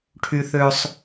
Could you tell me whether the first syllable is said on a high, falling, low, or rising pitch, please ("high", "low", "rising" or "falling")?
high